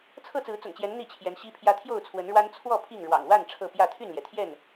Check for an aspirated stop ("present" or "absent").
present